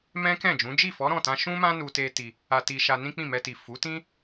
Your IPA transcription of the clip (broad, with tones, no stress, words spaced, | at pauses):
mɛ̃˦kɛ̃˦˨d͡ʒũ˨˦ d͡ʒi˦˨fɔ˨˦ɾɔ̃˦˨tã˧ ʃũ˦mã˦ nu˧ te˧ ti˧ | a˧ti˧ʃa˧ nĩ˦k͡pĩ˦˨mɛ˧ti˨ fu˨˦tĩ˦